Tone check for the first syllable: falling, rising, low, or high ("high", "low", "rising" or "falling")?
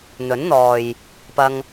rising